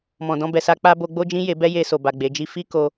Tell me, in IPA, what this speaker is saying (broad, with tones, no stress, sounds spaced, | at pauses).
m ɔ̃˨ d ɔ̃˧ b ɛ˨ s a˧ k͡p a˦ b o˧ ɡ͡b o˦ d͡ʒ ĩ˦ j e˧ b ɛ˦ j e˧ s o˨ b a˨ ɡ͡b e˨˦ d͡ʒ i˦ f i˦ k o˦